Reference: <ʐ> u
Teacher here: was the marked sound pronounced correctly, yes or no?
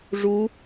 yes